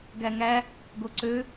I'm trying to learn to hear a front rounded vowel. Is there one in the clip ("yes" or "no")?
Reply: yes